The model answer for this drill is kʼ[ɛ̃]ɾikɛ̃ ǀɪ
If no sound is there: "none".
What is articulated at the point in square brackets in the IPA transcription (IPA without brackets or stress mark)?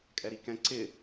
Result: ɛ